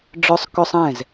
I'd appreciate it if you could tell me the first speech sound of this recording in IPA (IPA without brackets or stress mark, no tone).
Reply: ɖ͡ʐ